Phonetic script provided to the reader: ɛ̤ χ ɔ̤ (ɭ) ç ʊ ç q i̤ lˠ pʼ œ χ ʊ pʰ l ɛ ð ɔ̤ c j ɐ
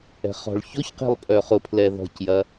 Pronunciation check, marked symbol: correct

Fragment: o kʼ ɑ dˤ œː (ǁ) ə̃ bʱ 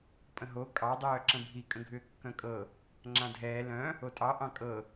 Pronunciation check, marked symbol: correct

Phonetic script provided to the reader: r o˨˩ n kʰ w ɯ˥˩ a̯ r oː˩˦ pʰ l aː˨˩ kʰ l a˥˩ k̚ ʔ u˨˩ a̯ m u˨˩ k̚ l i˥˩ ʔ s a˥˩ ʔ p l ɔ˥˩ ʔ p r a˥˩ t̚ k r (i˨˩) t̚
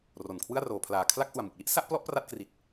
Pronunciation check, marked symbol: correct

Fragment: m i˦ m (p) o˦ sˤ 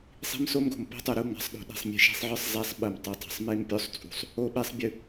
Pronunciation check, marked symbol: incorrect: pʲ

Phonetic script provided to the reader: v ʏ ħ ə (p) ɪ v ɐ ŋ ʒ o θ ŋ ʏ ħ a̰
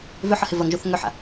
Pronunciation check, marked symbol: incorrect: h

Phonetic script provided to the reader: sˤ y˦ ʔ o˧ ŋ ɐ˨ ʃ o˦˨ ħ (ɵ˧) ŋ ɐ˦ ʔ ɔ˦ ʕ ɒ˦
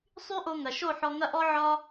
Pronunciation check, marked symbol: incorrect: ɔ˧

